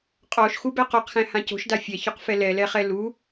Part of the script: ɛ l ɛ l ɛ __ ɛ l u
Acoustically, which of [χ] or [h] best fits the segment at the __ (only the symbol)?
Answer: χ